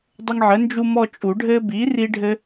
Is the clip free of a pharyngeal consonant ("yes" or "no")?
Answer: no